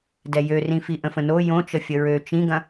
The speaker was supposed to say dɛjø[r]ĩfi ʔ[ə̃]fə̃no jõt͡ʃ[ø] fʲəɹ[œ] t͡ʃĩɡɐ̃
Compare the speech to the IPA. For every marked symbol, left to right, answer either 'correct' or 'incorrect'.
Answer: correct, correct, incorrect, incorrect

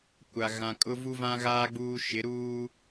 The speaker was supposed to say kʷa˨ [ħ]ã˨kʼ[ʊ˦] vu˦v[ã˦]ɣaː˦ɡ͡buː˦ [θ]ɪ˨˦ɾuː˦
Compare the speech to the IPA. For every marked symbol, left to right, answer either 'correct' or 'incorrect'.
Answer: incorrect, correct, correct, incorrect

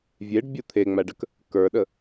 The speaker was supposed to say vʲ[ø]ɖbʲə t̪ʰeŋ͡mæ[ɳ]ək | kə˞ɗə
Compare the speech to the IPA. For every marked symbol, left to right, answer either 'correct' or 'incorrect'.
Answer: incorrect, incorrect

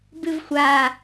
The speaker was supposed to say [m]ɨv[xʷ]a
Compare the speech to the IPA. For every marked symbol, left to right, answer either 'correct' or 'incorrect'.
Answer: incorrect, correct

